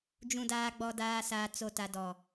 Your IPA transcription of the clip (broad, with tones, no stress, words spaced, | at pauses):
d͡ʒũ˨daː˨ɡ͡bɔ˨ daː˨ saː˨t͡so˨ta˨ dɔ˨